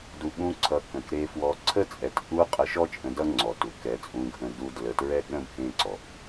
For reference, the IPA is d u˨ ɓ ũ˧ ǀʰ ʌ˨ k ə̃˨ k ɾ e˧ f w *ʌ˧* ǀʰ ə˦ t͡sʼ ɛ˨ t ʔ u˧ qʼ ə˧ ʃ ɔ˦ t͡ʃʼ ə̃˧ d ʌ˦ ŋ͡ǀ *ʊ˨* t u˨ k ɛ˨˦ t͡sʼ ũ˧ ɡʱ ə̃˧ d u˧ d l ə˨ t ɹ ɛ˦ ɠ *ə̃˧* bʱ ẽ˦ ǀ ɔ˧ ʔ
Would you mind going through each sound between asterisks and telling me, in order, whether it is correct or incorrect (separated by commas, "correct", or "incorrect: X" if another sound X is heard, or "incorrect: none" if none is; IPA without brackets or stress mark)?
incorrect: ɔ˧, incorrect: ɔ˨, incorrect: ə̃˦